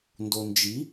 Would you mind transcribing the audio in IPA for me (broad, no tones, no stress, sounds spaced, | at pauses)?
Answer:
n d o n d͡ʒ i